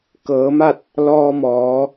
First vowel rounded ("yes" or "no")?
no